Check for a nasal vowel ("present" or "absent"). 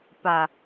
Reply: absent